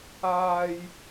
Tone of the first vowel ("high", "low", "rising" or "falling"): low